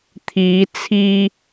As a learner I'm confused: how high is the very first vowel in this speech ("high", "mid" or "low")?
high